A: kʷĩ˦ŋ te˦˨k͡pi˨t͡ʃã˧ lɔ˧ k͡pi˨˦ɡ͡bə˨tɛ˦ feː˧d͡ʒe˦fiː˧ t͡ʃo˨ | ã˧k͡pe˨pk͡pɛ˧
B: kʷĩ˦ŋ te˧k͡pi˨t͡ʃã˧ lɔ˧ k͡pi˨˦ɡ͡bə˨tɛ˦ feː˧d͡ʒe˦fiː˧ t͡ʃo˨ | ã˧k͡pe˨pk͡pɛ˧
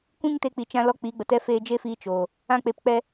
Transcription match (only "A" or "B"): B